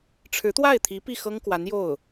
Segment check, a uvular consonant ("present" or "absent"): absent